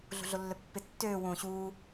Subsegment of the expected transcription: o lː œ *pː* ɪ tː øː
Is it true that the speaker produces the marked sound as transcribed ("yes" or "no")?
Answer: yes